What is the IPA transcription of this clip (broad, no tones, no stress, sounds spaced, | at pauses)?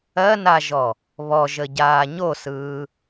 ɜ n a ʒ ɔ | β ɔ ʒ ə ɟ aː ɲ o s ɯː